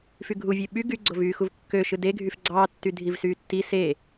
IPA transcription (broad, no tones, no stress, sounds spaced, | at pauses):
f y ɡʱ u vʲ e ɓ y ɡ y ɡ͡ǀ o v yː x u v kː ø ʃ ɯ d e ɡʱ y f ɡ͡ǀ ɑː tː y dʱ i v s yː tː i s e